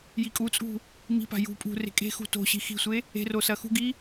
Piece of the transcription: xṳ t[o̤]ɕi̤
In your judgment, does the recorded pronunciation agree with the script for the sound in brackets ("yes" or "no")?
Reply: yes